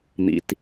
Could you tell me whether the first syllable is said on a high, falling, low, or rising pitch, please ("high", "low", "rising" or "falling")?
low